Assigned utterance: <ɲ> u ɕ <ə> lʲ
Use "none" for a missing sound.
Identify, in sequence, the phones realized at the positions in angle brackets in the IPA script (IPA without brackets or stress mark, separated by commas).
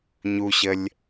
ɲ, ə